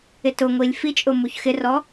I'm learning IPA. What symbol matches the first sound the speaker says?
ɪ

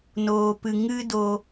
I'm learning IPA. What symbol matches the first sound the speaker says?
n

